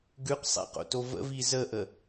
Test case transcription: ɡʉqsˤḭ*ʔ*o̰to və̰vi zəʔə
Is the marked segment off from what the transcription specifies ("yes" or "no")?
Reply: yes